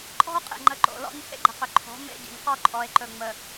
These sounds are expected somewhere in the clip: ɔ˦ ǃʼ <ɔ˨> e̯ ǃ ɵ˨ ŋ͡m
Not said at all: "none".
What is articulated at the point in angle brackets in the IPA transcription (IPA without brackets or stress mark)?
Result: ɔ˨